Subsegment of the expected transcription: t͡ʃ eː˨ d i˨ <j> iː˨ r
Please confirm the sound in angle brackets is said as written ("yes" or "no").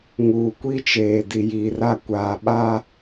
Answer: yes